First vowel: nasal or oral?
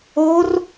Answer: oral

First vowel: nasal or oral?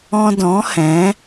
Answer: nasal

